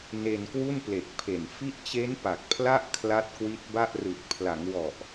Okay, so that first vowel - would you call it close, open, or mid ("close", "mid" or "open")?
mid